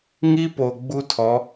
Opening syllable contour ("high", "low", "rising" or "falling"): high